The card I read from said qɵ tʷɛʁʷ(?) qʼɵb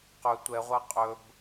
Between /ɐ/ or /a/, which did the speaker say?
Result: a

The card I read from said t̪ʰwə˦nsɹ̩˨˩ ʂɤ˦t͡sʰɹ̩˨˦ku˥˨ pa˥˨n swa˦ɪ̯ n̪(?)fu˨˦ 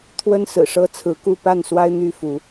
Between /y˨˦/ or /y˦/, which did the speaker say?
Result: y˦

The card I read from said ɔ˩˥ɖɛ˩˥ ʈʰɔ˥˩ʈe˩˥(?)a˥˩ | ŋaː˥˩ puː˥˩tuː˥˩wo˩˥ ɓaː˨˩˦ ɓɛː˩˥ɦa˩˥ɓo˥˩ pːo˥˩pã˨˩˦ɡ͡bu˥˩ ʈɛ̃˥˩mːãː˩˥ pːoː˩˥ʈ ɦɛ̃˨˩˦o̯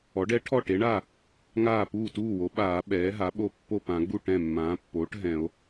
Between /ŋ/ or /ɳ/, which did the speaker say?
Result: ɳ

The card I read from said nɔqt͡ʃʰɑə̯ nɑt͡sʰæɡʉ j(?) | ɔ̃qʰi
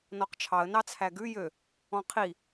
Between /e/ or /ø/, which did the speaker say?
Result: ø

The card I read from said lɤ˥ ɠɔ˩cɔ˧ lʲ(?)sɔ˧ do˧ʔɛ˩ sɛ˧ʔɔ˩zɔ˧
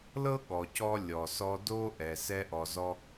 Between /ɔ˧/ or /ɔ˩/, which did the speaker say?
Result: ɔ˩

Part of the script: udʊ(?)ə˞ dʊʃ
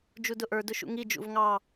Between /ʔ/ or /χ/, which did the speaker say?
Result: ʔ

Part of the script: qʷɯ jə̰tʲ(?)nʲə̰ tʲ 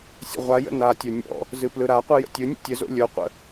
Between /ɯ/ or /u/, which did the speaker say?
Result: ɯ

